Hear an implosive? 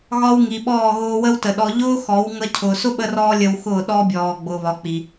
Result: yes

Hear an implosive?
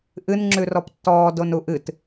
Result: no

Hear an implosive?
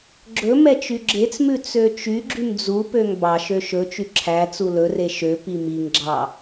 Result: no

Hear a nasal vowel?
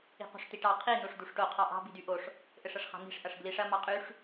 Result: no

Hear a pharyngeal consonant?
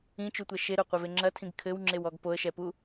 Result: no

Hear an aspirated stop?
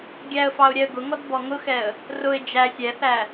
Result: no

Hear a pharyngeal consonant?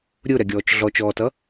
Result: no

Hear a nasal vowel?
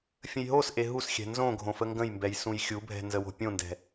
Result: yes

